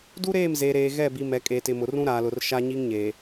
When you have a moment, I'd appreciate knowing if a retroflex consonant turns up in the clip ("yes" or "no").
no